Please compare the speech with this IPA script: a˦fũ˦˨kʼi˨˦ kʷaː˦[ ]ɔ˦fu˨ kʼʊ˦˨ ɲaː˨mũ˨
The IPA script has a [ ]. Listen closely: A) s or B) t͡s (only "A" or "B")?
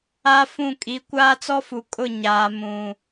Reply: B